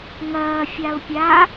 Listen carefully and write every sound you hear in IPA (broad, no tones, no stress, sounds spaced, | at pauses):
ŋ ɐː fʲ a ʊ̯ pʲ a